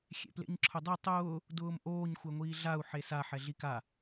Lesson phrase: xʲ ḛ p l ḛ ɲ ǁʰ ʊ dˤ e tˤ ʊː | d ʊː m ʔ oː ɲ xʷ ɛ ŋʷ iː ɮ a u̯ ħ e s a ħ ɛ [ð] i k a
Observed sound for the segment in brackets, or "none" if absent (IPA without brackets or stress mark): ɮ